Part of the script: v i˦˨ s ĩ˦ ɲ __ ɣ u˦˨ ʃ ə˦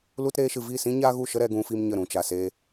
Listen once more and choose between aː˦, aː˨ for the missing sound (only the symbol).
aː˦